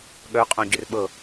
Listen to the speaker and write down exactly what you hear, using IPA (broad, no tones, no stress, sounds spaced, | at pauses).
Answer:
ɠ œ qʼ õ ɟ ʏ r ɓ ɤ